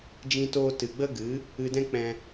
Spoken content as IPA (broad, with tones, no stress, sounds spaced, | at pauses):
d͡ʒ ĩ˧ t oː˧ t ɨ˨ ɡ͡b ə˦ ɡ ɨ˨˦ | ɨ˧ d ɛ̃˦ k͡p ɛ̃˧